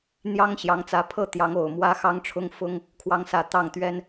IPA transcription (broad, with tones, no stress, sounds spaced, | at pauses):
n̪ j ɑ˥ ŋ ɕ j ɑ˧˥ ŋ t͡s ä˧˥ pʰ ɤ˥˩ t̪ j ɑ˧˥ ŋ o˨˩ ʊ̯ m w ä˥ x ɑ˥ ŋ ʈ͡ʂʰ ʊ˥ ŋ f ʊ˥ ŋ | kʰ w ɑ˧˥ ŋ s ä˨˩ t̪ ɑ˥˩ ŋ t̪ ɥ ɛ˥ n